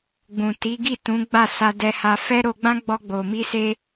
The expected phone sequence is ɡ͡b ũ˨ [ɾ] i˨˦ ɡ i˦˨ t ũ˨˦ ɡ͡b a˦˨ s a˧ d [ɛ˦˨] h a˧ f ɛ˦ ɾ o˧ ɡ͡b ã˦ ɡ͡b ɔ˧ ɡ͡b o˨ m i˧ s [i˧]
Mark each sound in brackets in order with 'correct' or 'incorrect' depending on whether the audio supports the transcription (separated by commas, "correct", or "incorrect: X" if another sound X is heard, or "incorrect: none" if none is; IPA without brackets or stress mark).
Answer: incorrect: t, incorrect: ɛ˧, incorrect: e˧